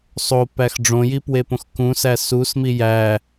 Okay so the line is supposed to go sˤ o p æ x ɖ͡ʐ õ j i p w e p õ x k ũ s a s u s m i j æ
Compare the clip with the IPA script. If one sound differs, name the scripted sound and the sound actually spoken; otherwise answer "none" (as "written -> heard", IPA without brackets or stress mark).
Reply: a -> æ